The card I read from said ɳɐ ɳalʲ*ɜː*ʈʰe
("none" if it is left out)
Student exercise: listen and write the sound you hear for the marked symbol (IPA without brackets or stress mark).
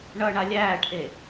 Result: æː